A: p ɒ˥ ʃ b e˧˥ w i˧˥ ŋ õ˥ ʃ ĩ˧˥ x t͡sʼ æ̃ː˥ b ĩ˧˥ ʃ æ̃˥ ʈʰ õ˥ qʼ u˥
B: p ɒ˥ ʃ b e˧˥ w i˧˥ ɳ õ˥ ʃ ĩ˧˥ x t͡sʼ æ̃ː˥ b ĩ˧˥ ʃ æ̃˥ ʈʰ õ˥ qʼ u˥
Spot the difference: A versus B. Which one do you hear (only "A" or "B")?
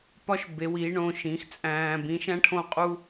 B